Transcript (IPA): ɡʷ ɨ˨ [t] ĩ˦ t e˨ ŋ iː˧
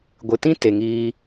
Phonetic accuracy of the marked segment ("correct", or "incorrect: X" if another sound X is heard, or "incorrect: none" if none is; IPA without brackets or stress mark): correct